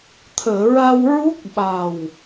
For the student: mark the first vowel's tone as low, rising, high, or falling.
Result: low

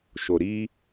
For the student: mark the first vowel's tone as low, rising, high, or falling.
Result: low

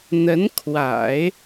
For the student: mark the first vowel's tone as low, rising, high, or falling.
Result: rising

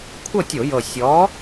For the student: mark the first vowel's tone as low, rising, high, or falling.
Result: falling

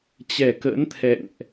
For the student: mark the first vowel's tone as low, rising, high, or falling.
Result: low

